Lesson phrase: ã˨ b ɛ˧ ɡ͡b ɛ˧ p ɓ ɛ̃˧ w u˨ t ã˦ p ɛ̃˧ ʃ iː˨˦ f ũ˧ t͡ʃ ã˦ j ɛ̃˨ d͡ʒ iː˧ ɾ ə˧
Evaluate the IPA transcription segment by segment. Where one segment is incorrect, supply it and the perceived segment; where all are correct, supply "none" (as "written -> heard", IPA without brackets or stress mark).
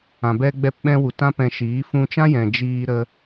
none